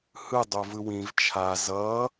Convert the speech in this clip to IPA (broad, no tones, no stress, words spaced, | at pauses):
hɯ dˤovɯwĩv t͡ʃʰa zʌ